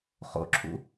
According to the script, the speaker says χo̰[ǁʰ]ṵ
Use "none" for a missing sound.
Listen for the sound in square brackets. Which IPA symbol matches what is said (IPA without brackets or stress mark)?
ǁʰ